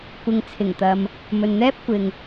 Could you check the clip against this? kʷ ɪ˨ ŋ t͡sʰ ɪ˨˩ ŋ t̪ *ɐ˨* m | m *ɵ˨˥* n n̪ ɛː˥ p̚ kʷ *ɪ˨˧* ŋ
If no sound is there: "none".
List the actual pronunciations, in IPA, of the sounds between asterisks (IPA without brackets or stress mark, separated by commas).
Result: ɐ˨, ɵ˨, ɪ˨